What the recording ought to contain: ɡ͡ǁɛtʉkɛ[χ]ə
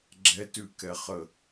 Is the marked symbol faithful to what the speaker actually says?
yes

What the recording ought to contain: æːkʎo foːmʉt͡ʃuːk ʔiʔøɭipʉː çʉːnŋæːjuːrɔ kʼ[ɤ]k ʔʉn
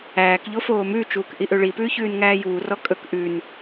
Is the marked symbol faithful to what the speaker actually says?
no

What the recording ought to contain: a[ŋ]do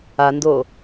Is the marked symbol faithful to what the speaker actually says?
no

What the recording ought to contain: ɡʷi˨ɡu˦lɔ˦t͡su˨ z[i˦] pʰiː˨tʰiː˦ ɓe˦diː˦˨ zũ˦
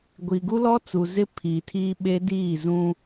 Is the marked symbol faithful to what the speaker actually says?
no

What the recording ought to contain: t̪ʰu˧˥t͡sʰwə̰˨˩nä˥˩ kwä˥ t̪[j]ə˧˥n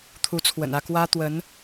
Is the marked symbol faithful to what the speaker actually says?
no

